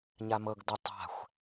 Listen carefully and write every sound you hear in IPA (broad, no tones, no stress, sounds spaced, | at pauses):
ɲ a m ɤ ɡ d ɤ tˤ a̤ xʷ